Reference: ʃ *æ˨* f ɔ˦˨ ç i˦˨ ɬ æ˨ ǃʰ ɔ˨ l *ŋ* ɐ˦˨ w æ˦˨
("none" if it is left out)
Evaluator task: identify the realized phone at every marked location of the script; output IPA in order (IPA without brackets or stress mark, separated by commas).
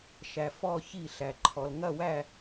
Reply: æ˨, ŋ